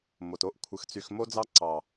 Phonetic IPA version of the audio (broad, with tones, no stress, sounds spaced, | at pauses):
m o˨ t o˦ ʔ kʷʰ ɯ˨ x t͡s y˨ x m o˦ d͡z ɑ˦ ǀ ɑ˨